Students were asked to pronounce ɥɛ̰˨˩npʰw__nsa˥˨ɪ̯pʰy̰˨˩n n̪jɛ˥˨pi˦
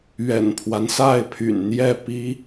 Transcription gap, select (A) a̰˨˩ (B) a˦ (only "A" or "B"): B